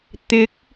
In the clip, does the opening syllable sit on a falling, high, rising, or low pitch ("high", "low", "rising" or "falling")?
rising